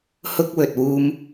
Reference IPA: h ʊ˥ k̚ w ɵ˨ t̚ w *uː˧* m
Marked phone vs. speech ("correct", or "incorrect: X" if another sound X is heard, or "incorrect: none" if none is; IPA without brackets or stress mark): correct